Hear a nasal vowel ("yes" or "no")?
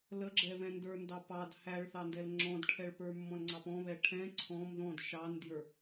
yes